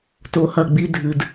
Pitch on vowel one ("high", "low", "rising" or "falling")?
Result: low